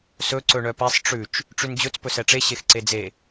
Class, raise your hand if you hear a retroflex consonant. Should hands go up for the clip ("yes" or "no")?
yes